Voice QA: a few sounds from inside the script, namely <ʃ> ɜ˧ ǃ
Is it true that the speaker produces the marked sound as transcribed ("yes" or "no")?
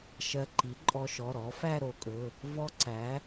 yes